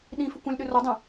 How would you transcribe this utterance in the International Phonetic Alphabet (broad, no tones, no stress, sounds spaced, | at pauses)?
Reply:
ɗ ĩ f ʏ kʷ ə̃ lʲ ɗ ʏ r o dˤ ẽ